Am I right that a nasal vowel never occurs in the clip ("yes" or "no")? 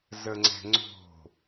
yes